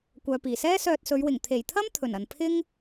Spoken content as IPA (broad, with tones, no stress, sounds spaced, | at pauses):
kʷ œː˨ p iː˨˩ s ɛː˥ s œː˧ t̚ s ɵ˨˧ ɥ w ɪ˨˩ ŋ t̪ʰ e˨˩ j t̪ʰ ɐ˥ m t̪ʰ ɵ˨˩ n ɐ˨ n pʰ ɪ˥ ŋ